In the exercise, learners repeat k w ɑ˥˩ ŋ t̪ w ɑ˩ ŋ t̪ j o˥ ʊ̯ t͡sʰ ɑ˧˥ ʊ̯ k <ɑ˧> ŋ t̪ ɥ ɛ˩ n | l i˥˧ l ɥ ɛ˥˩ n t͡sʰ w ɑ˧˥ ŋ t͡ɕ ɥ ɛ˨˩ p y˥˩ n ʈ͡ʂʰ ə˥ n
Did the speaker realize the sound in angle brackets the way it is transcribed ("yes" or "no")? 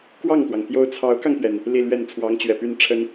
yes